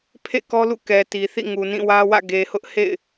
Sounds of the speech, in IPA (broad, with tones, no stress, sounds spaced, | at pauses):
pʰ ḛ˦˨ k ɔ˦ l ṵ˦˨ k ɛ˨ t i˨ θ ḭ˦˨ ŋ u˨ n ĩ˦˨ w ä˦ w ä̰˦˨ ɡ e˨ h ʊ˦ ʔ h ḛ˦˨ ɪ̯